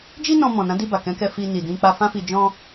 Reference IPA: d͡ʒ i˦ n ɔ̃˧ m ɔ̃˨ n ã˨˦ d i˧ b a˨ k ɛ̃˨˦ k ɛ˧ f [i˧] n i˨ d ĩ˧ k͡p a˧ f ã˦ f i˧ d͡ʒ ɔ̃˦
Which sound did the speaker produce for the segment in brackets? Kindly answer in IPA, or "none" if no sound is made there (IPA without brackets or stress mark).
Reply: i˧